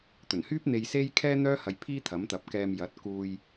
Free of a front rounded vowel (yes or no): no